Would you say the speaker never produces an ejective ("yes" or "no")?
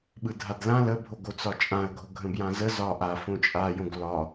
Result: no